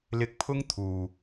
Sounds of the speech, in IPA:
l ɪ˧ k̚ pʰ ʊ˥ ŋ t̪ʰ uː˨

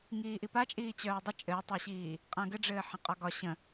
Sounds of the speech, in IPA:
ŋ iː ʔ i p a t͡ʃʼ iː t͡ɕ œː dˤ ə t͡ʃʼ ɘː tˤ a ɕ iː | qʼ ã ɡ ɘ ɖ͡ʐ ɘː ħ ə̃ qʼ ɒ ɡ ɒ ɕ ə̃

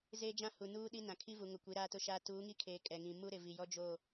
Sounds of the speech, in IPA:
z eː˦ d͡ʒ ã˦ h u˨ n uː˦ ɗ i˦ n ã˨ kʰ i˦ v u˨ ŋ ʊ˨ kʷ i˨˦ ɾ aː˦ t ʊ˦ ʃ a˦ t uː˨˦ ŋ i˦ kʰ eː˨ kʼ ɛ˨ ŋ ĩ˨ m u˦ ɾ ɪ˨ v i˨ j ɔ˦ d͡ʒ o˦˨

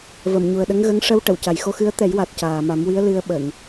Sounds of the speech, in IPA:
v ə˨˩˨ m ɲ u˨˩ ə̯ ɗ ə˧˥ ŋ ɣ ə˧˥ ŋ ʂ ə˧ w ʈ ə˨˩˨ w c a˨˩ j x o˧ x ɨ˧˥ ə̯ t̪ ɛ˨˩˦ j w a˨˩ t̚ c aː˨˩ m a˨˩˦ m w i˧˥ ə̯ l ɨ˧ ə̯ ɓ ə˨˩˨ ŋ

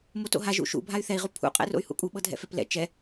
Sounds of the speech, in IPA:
m o t o̰ ɦ a ʒ ṵ ʃ ṵ bʱ a y̯ θ ɛ i̯ ʁ u pʰ ṵ qʼ ɛ̰ r o̰ y̯ h ṵ kʼ u ɓ ɤ dʱ ɛ̰ f ɛ p l ɛ̰ t͡ʃ ɛ

